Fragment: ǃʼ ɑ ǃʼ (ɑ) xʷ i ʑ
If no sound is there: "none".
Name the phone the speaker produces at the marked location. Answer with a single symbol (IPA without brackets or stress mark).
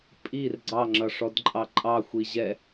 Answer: ɑ